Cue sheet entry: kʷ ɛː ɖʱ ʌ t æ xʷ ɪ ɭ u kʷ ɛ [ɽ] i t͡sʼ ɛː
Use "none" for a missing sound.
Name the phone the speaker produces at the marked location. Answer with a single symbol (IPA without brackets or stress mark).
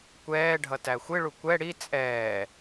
ɽ